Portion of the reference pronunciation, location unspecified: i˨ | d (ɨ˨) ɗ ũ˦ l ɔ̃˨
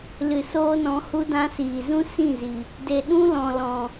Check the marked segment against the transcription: incorrect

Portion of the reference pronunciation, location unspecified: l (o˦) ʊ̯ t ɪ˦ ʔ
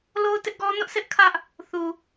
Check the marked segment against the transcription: correct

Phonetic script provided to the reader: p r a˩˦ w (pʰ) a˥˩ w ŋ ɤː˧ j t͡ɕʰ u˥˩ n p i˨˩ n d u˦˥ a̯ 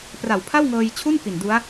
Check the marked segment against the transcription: correct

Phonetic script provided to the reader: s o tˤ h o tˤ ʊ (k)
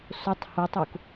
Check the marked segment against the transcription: correct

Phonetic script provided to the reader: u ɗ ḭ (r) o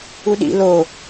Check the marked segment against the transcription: incorrect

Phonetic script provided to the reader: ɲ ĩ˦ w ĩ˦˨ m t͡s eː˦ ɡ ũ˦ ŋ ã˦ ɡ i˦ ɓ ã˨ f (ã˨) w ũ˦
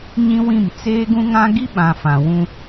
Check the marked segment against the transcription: correct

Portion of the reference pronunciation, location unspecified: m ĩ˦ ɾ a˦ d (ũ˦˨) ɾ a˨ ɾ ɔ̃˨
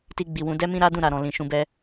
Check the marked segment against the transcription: correct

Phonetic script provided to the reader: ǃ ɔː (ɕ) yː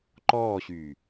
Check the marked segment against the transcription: correct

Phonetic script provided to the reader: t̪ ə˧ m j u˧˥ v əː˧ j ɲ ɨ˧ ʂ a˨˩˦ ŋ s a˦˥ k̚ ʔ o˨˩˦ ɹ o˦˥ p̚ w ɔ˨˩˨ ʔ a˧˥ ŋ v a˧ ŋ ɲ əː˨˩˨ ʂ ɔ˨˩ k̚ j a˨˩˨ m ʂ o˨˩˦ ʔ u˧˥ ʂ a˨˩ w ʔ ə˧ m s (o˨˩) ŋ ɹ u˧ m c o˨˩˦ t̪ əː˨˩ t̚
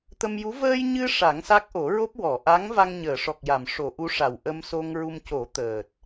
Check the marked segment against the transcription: incorrect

